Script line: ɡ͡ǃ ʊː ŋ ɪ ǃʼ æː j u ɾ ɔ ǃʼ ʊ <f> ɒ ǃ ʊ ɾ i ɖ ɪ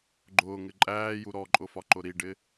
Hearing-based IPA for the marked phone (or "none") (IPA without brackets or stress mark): f